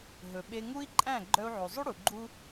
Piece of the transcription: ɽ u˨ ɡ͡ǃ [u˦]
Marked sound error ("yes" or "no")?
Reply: no